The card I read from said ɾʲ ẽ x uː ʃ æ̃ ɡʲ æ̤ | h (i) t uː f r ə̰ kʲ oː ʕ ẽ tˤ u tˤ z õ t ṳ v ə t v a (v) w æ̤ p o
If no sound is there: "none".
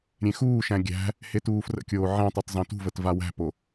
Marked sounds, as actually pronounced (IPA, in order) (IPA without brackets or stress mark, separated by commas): e, none